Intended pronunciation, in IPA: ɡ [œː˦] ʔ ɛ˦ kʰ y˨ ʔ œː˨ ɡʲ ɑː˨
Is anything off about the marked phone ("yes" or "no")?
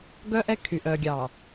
yes